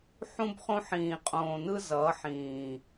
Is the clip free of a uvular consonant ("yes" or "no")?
no